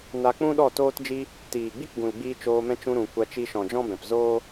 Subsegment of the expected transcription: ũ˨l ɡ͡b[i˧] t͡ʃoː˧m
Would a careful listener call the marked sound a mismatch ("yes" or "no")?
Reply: yes